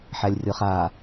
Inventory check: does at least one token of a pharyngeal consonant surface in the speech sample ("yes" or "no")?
yes